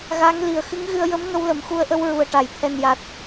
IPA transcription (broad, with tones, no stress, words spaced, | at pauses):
ɣa˧˥ŋ li˨˩˨ə̯xɨ˧˥ŋɣɨ˧ə̯jə˧˥m ŋə˧wlə˨˩mxu˧ə̯ʔə˧w ɹu˨˩ə̯ʈa˨˩˨jt̪ʰɛ˨˩nja˨˩t̚